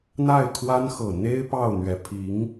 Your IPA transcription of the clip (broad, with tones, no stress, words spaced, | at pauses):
n̪a˥˩ɪ̯kʰwa˥nxɤ˨˩ n̪e˥ɪ̯ pɑ˥˩ʊ̯n̪ɥɛ˧˥ pʰi˧˥ŋ